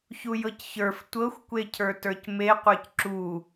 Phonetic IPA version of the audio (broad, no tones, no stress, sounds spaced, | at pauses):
ç u j ɤ c ç ə˞ f tʷ ɤ xʷ kʷ e cʰ ə˞ t ə˞ c m e qʷ ə˞ c ǁ u